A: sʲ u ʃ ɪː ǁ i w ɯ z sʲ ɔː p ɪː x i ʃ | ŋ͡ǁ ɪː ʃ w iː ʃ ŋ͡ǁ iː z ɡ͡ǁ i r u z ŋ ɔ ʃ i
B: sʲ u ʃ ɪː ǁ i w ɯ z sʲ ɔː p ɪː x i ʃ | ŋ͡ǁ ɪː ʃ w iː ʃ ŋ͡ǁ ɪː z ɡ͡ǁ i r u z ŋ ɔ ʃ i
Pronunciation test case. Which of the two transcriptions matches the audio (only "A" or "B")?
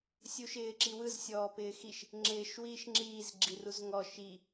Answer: A